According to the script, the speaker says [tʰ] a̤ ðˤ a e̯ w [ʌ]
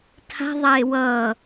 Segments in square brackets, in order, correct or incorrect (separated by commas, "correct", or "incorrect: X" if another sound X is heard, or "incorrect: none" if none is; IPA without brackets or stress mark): correct, correct